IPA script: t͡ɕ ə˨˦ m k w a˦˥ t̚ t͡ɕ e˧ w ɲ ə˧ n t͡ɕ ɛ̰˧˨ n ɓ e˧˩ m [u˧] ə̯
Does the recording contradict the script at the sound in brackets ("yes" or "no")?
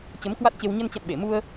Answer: no